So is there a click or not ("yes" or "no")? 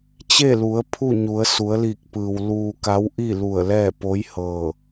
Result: no